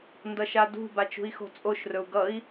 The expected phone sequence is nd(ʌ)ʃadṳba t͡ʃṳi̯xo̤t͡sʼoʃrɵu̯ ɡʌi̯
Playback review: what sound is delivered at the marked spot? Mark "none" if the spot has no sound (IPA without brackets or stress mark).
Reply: ʌ